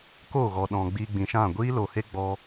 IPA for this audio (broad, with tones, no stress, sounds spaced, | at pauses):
k o˦˨ ɣ ɔ˨ ɗ ɔ̃˨ ɡ͡b iː˧ ɡ͡b ĩ˨ ʃ ã˦˨ ɡʷ iː˦ l o˨ h e˦ ɡ͡b ɔ˧